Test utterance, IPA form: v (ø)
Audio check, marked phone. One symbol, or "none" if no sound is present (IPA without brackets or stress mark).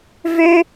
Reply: ø